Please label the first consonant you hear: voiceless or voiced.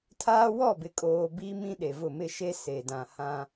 voiceless